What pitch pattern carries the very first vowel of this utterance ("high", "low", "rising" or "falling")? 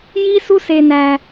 high